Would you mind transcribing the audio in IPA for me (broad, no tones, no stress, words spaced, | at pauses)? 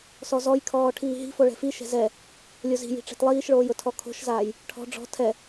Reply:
sɔzɔjkʰɔː ʈʰiːɦi̤fo ɭɛ̤fiʃɛ̤ zɛ | lʲozi̤ji̤ ʈ͡ʂɛ̤tlˠiːʃɭoːj ʊtʰɔkʰo̤ʃzaːj | ʈʰɔ̤ ɖ͡ʐɔ̤ tʰɛ